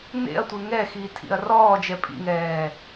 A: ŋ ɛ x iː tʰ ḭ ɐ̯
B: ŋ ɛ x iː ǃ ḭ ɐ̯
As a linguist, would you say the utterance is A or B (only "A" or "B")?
A